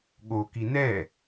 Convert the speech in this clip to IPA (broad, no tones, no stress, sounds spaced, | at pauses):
ɠ o k i n ɛ